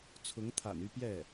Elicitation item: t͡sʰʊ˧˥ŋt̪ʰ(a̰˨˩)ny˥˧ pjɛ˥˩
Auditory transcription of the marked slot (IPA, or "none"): a̰˨˩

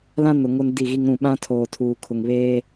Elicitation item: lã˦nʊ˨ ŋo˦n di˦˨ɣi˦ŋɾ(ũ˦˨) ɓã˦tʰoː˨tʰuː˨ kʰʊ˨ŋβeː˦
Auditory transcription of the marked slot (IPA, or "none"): ũ˦˨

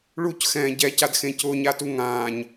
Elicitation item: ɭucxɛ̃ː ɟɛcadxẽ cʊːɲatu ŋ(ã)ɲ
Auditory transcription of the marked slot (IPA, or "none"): ãː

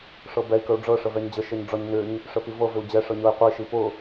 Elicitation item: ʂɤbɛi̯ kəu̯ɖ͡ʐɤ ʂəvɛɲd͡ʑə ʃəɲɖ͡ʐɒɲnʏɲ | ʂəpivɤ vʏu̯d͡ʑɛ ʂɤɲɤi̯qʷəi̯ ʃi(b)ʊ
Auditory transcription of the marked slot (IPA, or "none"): p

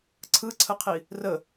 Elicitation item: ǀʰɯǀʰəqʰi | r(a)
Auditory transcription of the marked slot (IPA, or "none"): ə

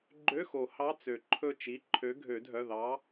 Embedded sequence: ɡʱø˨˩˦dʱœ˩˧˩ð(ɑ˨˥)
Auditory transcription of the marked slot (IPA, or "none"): ɑ˨˥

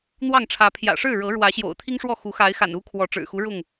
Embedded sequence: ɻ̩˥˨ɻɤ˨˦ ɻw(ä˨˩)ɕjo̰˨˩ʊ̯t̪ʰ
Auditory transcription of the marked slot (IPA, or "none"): ä˨˦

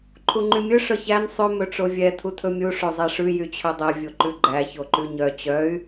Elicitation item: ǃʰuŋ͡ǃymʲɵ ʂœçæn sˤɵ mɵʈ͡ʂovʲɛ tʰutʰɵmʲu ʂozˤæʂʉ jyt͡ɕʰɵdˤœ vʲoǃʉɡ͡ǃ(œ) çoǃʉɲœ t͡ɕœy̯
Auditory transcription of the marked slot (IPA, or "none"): æ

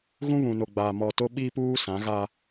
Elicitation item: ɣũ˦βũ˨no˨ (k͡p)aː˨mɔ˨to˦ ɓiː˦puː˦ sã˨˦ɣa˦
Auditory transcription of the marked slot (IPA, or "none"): ɡ͡b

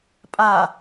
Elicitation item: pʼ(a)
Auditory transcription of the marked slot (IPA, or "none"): a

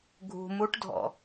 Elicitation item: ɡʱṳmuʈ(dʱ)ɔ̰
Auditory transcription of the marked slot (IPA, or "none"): dʱ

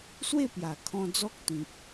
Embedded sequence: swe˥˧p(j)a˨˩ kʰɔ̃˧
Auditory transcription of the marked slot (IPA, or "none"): j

